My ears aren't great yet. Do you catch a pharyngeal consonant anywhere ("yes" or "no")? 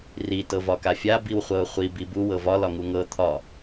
no